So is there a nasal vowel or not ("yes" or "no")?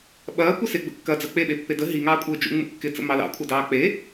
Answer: no